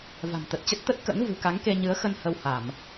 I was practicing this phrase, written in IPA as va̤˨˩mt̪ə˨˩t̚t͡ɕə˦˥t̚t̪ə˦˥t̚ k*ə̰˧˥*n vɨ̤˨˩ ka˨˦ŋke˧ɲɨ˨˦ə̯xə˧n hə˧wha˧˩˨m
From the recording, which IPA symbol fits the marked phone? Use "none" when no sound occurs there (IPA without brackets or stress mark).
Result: ə̰˧˥